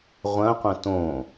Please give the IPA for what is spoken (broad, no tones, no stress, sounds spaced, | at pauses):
ʁʷ ɐ̃ qʷ ɐ̃ t õ